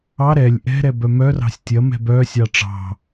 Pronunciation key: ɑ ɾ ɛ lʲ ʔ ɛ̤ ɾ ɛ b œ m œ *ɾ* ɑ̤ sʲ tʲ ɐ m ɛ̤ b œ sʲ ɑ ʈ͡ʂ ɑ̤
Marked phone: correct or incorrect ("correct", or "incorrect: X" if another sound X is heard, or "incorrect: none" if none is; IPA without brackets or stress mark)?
incorrect: r